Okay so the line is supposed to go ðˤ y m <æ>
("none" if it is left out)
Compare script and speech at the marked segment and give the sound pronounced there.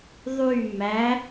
æ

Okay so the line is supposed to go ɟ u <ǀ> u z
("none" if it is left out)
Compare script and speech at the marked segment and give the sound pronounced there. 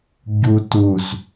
t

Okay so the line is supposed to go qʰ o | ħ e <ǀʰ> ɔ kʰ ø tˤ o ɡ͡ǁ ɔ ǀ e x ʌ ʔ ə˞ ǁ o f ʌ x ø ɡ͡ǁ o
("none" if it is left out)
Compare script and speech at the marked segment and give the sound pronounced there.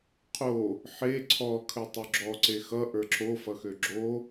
ǀʰ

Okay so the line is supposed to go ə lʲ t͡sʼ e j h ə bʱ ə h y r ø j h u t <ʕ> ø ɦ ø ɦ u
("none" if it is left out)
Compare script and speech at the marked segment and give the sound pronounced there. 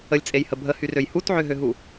ʕ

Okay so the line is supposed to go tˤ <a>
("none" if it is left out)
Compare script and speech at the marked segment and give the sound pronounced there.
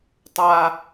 a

